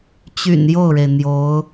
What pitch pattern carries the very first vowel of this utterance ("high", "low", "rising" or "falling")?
low